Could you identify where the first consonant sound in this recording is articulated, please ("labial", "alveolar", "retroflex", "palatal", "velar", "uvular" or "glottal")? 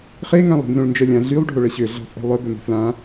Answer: uvular